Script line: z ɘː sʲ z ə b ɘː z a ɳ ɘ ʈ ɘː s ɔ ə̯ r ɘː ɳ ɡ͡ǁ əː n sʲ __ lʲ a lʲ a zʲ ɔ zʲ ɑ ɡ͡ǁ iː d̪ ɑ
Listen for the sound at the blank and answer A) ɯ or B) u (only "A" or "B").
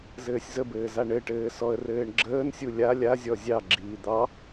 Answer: B